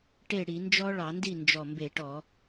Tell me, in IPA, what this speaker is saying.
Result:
ʈe˥˩ ɽi˧˩˧nd͡ʒɔ˦˥ɭɑ˧˩˧ndi˥˩ nd͡ʒɔ˧˩mbe˧˩˧ʈɔ˧˩˧

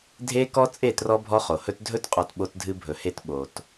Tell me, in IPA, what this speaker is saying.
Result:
dʱe˦kɔ˦ t͡sʼe˦˨trɔ˦ bʱɔ˦χo˨ hɵ˦t dʱɵ˦tqʼɔ˨t ɓo˦tdʱɨ˦bʱɵ˨he˦t ɓo˨t

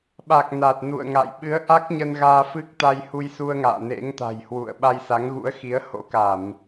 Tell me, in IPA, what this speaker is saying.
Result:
ɓa˨˩k̚ na˨˩t̚nṵ˧˨ə̯ŋa̰˧˨j ɓɨ˨˦ə̯ʔa˦˥k̚ɲə˧n ɣaː˧fɨ˦˥k̚ t̪a˧jhu˧jsu˧ə̯ŋa̰ː˧˨ nḛ˧˥ŋt̪a̤˨˩jhwṵ˧˨ə̯ ɓa˧jsa˨˦ŋɣṵ˧˥ə̯xi˨˦ə̯ ho̰˧˥ka˧˩˨m

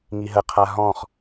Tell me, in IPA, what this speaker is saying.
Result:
ŋiɦəqʰa ɦɔ̃χ

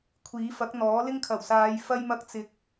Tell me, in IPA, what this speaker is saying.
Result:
kʷʰiː˨˥fɐ˨˥k̚n̪ɔː˨˥ lɪ˥ŋkʰɐ˨˩wsaː˨˧j fɐ˥j mɐ˥k̚t͡sɪ˧k̚

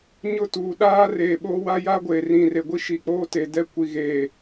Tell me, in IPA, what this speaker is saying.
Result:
ɲʊ˦tuː˨ ɗaː˦ reː˨ɓoː˦ wa˦ja˦ ɡʷeː˨rĩ˨re˨ɡʷi˦ ʃi˨k͡poː˦te˨ dɛ˦kʷi˨ɣeː˨

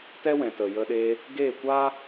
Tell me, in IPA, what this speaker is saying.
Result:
tɛ˦wɛ̃˨ tə˨jə˧ɗeː˧ | ɡeː˦˨kʷaː˦

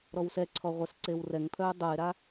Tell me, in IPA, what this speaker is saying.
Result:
ɾɔwsɛǀʰɔ ʁʷɛsǀewrɛŋpʰœʊ̯ dˤoɪ̯ɾa

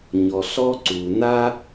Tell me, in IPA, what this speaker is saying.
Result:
ɲɔ˨ɬɔ˦ǀu˨ na˦

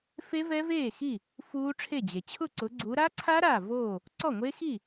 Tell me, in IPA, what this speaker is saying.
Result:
fe˦˥vɛ˦˥veː˥˩ xi˥˩ | fuː˦˥ʈ͡ʂʰe˥˩d͡ʑe˩ t͡ɕʰʊ˥˩ǀʊ˨˦ɡ͡ǀu˨˦ ɾa˦˥ǀʰa˦˥ ɾa˥˩voː˥˩ | ǀɔ˥˩ŋʷe˦˥xi˥˩

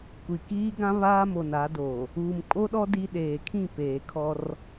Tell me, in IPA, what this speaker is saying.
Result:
kʷi˨ kiː˦ɡã˦ βaː˦mo˨na˨˦doː˨ | uː˨mkʼo˦ɗɔ˦ di˦ ɗeː˨kʰĩ˦˨ peː˨ kʰɔ˦r

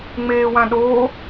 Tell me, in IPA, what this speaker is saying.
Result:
ŋ͡meːwãɗoː

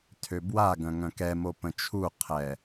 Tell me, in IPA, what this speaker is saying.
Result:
tʰøbwaɡœ̃ ŋœ̃kɛmo pə̃t͡ʃʰuqʰɛ

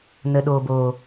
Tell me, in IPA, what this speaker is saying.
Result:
nə˨ɗoː˨boː˨

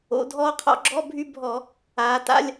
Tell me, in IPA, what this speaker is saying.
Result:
o̰˩˧ dʱɔː˧qʰɔ̰˧˩˧ɡ͡ǁɔ˧˥˧bʱy˧ bʱɔ˧˩˧ | aː˩˧ta̰˧˥˧lʲ

